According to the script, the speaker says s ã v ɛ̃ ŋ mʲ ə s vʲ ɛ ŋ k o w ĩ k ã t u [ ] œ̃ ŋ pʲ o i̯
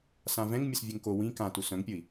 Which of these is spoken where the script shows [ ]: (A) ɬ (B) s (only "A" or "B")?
B